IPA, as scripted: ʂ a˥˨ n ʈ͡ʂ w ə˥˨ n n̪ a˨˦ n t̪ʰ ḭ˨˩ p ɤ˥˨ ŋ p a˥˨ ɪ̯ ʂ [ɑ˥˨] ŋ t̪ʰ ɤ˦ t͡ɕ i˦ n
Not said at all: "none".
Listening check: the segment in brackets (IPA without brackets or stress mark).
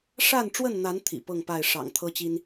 ɑ̰˨˩